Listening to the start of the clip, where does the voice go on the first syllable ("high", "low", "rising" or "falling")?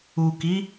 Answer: low